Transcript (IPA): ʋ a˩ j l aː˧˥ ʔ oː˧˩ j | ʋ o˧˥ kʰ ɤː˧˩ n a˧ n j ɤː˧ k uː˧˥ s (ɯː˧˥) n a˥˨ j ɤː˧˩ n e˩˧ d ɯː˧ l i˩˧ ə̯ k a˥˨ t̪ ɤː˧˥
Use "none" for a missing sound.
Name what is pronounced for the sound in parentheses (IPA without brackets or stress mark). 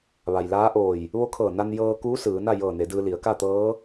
ɯː˩˧